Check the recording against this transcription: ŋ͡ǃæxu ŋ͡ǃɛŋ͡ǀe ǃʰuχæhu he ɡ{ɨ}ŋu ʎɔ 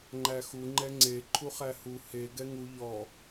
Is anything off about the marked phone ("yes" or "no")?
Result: yes